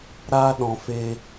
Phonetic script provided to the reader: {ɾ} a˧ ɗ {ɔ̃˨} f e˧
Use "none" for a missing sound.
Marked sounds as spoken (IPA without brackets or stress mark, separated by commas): ɾ, ɔ̃˨